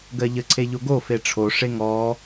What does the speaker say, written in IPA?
ɡɜʎə ǀʰeʎoɡo feʈ͡ʂʰo ʂeŋɔ

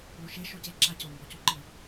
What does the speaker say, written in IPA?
ɭoʃe ʃoce ǁacʊmbɔ cuǃi

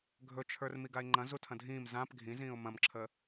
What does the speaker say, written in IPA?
ɡʱɵt͡ʃʰə˞r miɡaɪ̯ŋ͡ǃɐ̃ zutʰɐ̃dʱĩːm zãp ɡʱĩzĩːʊ̯ mɐ̃mǁʰə

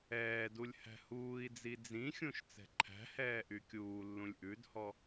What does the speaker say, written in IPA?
ɛːdulʲ hæ̤huːi̯d͡zi d͡zĩxʲũʃ t͡sɛ̤ǃʰæ̤hɛː ʔykʲuːlːũlʲ ʔʉdhɔ

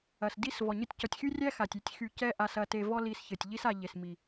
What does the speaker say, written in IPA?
ɐ˨sdi˦svɔ˨ɲɘ˦tʲ cɔ˨tʲxy˦rʲæ˦ xa˨tʲ y˦tʲxy˧ cɛ˦ʔa˧sɐ˧ te˧vɔ˦ li˧sçɘ˨tʲ ʎi˦sa˧ʎe˨smi˨

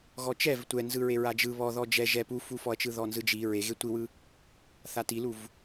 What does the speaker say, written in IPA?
ɣɔt͡ʃɛv tʷɛnzɯɹe ɹad͡ʒɯ βɔ ðɔd͡ʒɛ ʒɛ pufufɔɐ̯t͡ʃɯ ðɔnzɯd͡ʒi ɹe ɣetʷiwɯ | θatiluv

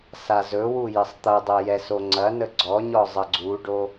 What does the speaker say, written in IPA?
sazɵwu jɘsˤt̪ɐdˤɤ jɛso ŋ͡ǀɐnə ɡ͡ǀɔɲɔ zˤəɡ͡ǀuɖo

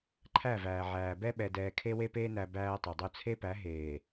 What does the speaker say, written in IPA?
ǃʰæ˦˨væː˨ʕæː˨ bɛ˦ɓɛ˨dɛː˨ kʰe˦we˦peː˦næ˨ bæː˦tˤo˨dˤo˦ t͡sʰe˦pæ˨˦ ɦeː˨

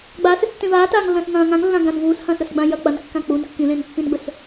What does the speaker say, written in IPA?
ɡ͡baːsɨstːẽ vaːtaːŋlːɐ̃ːs ŋɐ̃ː ŋãŋlːã ɡãn vuːshɐ̃ːsɾɵsɡ͡bã jɐ k͡pɐnkːã k͡pun kːĩlẽnpːĩnɡ͡bɵs

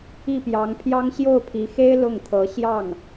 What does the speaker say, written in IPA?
i˥˩pjɑ˧˥ŋpʰjɑ˥ŋ ɕjo˥˩ʊ̯pʰi˧˥xe˥ɪ̯ lʊ˥˩ŋt̪ʰɤ˧˥ɕjɑ˥˩ŋ

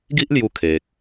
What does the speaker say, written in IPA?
ɡi˦ʔlju˧ kʰe˨k̚

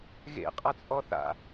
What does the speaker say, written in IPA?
ɣḛqʼat͡sʼɔ θa̰

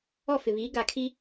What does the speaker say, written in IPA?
ɔ˦˨fɪ˨βiː˨˦ ɡa˨kʰi˦

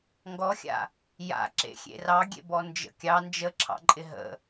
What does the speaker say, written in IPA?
ŋɡɔxʲa̰ | ja̰ ǁḛxʲḛrɑɡʲḛ bɔnd͡ʒə̰kʲɑ nd͡ʒəǁʰɑ̰ǃʼɪ ɦə̰

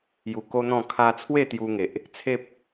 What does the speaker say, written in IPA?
ju˨˩ ko˦n̪ɔ̃˥˧ kʰa˧t͡sʰwe˥˧ t̪ju˧ŋe˨ʔ | t͡sʰe˦p̚

